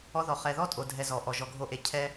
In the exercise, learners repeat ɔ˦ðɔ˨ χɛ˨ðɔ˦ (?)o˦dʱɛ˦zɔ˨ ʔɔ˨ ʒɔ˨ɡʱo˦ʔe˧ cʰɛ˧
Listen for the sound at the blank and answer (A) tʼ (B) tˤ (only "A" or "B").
A